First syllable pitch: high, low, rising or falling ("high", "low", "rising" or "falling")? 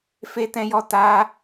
high